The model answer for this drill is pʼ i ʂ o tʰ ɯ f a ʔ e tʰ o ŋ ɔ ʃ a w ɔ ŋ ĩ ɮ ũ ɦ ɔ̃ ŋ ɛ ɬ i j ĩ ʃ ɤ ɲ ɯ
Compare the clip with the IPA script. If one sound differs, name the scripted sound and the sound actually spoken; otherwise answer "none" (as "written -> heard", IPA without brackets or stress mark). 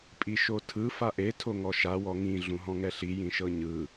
ʂ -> ʃ